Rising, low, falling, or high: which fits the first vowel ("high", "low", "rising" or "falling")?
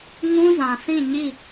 high